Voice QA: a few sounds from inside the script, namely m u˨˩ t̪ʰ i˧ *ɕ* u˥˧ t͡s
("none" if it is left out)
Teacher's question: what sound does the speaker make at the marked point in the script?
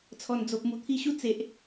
ɕ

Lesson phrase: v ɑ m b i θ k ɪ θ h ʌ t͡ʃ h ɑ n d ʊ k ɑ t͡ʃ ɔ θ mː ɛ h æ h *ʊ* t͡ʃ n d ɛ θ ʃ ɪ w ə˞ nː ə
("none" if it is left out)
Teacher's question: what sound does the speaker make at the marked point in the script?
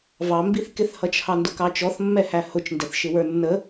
ʊ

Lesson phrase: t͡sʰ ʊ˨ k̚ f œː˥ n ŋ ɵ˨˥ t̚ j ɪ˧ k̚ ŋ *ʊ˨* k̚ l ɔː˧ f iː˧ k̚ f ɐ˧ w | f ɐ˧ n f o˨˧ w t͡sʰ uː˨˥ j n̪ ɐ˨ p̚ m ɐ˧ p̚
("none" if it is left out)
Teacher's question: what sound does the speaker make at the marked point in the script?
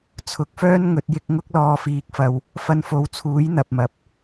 ʊ˥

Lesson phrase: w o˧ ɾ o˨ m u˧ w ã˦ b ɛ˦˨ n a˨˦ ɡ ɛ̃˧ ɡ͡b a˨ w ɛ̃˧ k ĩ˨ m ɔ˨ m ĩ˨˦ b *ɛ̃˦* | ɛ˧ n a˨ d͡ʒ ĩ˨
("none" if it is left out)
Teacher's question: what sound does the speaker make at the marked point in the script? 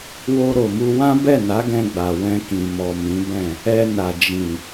ɛ̃˦˨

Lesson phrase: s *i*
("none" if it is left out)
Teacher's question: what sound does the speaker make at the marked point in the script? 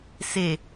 e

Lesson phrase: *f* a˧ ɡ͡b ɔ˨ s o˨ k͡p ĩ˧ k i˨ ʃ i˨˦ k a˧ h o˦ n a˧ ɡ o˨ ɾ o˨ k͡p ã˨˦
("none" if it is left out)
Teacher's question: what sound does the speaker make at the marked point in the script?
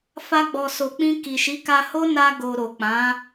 f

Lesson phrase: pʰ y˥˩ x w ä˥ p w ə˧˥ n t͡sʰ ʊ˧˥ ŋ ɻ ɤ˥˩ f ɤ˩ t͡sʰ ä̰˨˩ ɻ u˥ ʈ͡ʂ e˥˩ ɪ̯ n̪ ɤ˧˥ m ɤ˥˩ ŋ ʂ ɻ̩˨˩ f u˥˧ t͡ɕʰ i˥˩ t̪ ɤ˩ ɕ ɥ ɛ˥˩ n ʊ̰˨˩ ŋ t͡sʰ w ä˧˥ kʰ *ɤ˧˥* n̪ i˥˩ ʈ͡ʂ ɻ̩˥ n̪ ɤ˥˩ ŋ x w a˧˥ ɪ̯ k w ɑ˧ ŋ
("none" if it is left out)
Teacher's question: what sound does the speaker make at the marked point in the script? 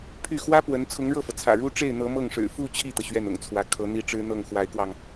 ɤ˧˥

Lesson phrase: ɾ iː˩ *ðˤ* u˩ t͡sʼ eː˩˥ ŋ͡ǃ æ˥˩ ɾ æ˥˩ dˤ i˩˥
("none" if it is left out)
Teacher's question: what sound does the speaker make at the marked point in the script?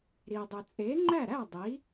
dˤ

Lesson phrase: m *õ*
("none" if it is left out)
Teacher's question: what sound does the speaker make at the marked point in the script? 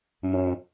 õ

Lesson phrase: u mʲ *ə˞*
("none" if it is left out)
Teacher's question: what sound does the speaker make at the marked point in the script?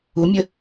ə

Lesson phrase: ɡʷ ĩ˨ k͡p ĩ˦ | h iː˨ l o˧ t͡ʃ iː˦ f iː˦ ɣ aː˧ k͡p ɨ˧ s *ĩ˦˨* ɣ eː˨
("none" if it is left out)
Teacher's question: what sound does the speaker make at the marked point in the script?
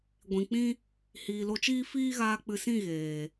ĩ˦˨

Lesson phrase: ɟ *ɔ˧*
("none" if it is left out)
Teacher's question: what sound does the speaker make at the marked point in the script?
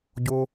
o˧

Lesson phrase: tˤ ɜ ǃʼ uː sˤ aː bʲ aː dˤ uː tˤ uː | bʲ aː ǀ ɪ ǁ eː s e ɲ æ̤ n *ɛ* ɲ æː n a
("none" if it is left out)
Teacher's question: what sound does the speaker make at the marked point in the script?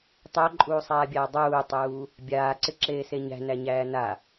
æ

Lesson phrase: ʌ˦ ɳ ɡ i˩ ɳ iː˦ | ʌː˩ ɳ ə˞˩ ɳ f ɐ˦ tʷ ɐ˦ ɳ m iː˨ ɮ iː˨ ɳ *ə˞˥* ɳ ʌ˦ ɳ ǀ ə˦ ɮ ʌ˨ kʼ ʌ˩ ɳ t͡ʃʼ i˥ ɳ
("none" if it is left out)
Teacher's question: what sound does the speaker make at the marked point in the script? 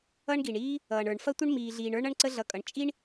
ə˞˥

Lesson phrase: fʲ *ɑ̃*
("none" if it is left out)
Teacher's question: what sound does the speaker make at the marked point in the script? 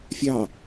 ɑ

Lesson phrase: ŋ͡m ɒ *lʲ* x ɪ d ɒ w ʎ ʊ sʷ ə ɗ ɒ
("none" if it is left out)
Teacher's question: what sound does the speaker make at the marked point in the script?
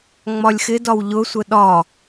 lʲ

